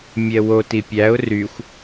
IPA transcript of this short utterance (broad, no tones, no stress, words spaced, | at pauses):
mʲɛwo tipʲæʊ̯ ryxʷ